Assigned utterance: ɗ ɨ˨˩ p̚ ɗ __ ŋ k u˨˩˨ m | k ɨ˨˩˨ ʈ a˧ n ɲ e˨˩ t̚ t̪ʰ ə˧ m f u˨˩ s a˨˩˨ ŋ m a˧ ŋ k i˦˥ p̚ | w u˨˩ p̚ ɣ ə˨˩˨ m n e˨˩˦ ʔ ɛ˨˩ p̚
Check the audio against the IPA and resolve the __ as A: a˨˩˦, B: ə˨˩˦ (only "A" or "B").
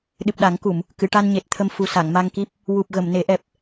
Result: A